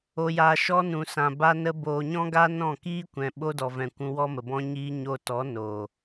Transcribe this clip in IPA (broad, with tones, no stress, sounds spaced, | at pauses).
o˨ j aː˨ ʃ ɔ˦ n ũ˨ s ã˨ b a˧ n ə˧ b oː˨ ɲ ɔ̃˦ ɡ a˦ n ɔ̃˦˨ k iː˦ kʷ ɛ̃˨ ɓ o˦ d ɔ˨ v ɛ̃˨ kʷ ũ˧ w ɔ˦ m ə˨ b ɔ̃˦ ɲ iː˦ ɲ o˧ t ɔ˨˦ n o˨